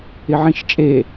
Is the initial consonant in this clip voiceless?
no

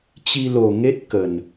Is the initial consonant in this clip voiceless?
yes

